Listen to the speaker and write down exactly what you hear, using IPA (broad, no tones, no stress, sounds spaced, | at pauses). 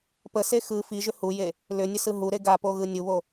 p ə s e x ɯ f i ʒ ʏ h u j e | l ʏ nʲ ə s ɯ ɦ u ɾ e ɡ a p o ɣ ɯ nʲ u β o